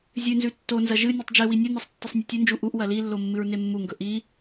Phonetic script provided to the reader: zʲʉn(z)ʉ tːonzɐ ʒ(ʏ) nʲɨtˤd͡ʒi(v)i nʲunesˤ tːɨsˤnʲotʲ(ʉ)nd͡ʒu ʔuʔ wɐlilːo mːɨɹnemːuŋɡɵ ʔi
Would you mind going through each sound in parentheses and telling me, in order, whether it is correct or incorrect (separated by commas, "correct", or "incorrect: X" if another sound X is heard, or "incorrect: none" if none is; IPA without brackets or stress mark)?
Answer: correct, incorrect: ɨ, incorrect: w, correct